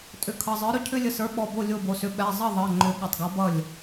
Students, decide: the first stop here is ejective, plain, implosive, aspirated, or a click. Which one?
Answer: ejective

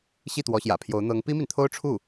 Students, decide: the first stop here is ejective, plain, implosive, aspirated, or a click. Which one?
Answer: plain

